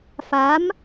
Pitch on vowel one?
rising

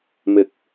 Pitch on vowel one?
low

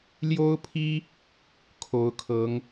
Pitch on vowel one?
high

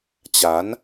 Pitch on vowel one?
rising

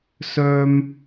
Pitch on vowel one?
high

